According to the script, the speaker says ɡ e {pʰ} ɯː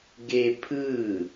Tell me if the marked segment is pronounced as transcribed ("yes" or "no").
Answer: yes